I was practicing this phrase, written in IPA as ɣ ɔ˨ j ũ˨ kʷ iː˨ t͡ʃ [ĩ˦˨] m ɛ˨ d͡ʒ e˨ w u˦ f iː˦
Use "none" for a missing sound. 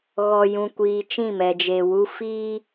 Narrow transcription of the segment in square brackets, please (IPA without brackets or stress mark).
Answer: ĩ˦˨